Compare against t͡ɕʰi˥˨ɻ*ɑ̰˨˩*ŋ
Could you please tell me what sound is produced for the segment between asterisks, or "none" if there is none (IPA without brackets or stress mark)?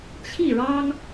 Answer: ɑ˦